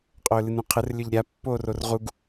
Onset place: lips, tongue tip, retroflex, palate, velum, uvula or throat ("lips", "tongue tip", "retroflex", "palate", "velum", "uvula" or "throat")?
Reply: uvula